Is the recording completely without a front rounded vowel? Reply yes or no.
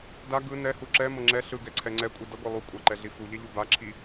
yes